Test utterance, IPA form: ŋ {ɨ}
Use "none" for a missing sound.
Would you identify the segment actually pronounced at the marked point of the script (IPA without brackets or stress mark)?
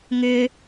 ʏ